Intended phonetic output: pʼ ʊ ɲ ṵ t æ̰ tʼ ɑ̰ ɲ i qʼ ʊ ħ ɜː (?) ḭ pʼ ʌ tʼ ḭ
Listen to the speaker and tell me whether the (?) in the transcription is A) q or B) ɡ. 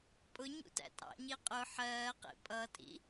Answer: A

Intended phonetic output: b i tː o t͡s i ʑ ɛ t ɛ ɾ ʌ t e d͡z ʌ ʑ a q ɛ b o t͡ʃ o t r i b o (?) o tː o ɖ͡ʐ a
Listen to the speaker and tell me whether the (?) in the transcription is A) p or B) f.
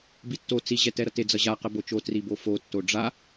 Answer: B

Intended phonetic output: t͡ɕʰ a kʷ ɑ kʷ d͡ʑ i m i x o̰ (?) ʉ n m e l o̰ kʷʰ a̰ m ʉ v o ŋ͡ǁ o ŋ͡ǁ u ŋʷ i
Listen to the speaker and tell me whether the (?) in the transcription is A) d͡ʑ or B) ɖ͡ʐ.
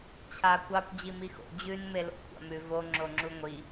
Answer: A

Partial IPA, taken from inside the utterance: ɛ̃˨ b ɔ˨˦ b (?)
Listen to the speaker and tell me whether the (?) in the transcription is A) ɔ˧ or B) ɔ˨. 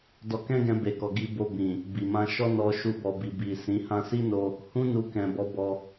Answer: A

